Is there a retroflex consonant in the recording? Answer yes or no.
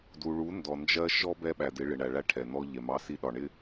yes